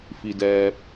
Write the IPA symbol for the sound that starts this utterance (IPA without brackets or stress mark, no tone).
f